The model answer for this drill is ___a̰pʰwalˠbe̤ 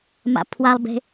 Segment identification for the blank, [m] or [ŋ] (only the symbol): m